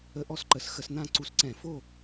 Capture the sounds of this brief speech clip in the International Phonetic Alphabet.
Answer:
ə˦˥ ʔ ɔ˥˨ s ǃ ə˧˩˧ s x ə˧˩˧ s n̪ ã˥˨ ǀ u˦˥ s ǀ ɛ̃˧˩˧ f o˥˨

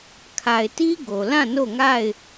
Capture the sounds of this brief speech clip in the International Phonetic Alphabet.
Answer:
kʰ a˨ ɪ̯ t i˦ ɡ o˨ l ã˦˨ n o˦˨ ŋ a˦˨ ɪ̯

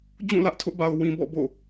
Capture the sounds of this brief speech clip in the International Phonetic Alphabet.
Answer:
d͡ʑ ũ˦˨ l ä˦ ʔ tʰ ʊ˦ ʔ b a˨ ʊ̯ w ĩ˨ b ɔ̰˦˨ b o̰˦˨

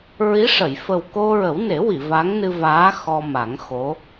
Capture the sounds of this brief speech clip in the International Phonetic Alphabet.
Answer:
ɹ i˧˥ ʂ ə˨˩˨ j f ə˨˩ w k o˧ ɹ ə˨˩˦ w n e˨˩˦ w i˨˩˨ v a˧˥ ŋ n ɨ˧ v aː˧˥ x ɔ˧ m a˨˩˦ ŋ x o˧˥

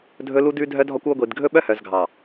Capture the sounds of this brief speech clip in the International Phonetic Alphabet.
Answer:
dʱ ɵ˦ l u˦ d ʉ˦ dʱ œ˦ dʱ ɔ˦ kʷ o˦ ɡʷ i˨ d ɡʱ ɵ˦ ɓ œ˦ h œ˨ z ɡʱ ɑ˨

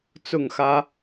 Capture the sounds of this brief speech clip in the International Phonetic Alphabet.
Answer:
t͡s ʊ˥˨ ŋ x ä˦

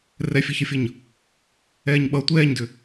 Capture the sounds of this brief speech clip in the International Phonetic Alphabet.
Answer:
r ɛ fʲ ɐ ç ʌ fʲ ʌ ɲ | ɛː ɲ ɓ ʌ tʷ ɛː ɲ d ʏ

